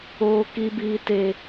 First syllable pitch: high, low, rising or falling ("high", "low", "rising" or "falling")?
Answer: high